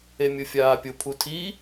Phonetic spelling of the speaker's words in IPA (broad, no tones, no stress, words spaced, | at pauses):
emʲʊfʲaːpʲʊ pʰutʰi